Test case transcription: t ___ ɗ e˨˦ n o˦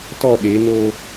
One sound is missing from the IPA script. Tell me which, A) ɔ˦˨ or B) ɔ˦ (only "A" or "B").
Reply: A